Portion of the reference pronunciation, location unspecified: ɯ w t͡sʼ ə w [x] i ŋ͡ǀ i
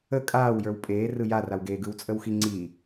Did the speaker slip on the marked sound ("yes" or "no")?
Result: no